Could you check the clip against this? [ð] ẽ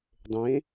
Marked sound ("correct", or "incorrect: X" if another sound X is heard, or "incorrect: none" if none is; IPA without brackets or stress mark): incorrect: dˤ